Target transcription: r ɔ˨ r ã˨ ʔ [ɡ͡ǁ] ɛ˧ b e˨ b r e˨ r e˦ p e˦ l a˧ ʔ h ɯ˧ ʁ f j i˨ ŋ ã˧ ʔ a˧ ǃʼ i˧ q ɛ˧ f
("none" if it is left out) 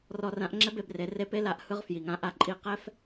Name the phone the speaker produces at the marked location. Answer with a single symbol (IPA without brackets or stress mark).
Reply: ŋ͡ǁ